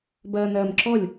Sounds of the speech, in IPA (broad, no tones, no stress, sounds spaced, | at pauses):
b ɐː n ɐː m ǁ ɔ lʲ